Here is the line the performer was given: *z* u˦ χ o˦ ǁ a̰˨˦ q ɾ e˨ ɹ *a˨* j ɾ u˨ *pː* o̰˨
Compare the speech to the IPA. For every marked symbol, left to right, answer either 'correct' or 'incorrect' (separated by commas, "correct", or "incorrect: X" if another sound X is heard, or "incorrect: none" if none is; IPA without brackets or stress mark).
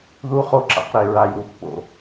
incorrect: ð, correct, correct